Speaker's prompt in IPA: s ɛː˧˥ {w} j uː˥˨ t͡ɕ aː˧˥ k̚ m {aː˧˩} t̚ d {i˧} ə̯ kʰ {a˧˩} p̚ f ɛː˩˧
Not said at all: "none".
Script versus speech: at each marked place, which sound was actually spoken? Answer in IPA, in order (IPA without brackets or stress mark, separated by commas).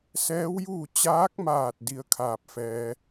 w, aː˧˩, i˧, aː˧˩